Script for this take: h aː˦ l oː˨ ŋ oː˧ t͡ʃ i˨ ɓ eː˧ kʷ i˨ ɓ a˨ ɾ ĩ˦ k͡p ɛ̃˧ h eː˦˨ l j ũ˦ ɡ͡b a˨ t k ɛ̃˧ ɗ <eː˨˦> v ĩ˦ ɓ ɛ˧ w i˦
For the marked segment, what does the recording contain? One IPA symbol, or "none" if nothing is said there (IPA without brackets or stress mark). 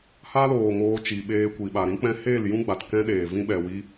eː˨